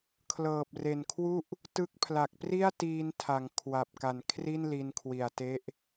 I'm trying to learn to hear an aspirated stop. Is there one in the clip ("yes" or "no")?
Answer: yes